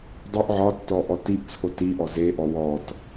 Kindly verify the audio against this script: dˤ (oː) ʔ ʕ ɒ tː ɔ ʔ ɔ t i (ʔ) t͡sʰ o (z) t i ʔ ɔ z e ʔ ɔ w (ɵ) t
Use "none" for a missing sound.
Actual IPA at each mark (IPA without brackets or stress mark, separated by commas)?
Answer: o, ʔ, none, ɔ